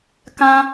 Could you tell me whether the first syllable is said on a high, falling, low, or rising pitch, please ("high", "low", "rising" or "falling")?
high